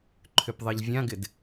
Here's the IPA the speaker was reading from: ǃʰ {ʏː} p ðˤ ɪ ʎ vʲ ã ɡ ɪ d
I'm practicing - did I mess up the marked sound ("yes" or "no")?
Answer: yes